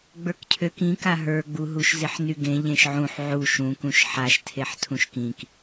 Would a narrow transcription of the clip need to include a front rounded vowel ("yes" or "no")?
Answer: yes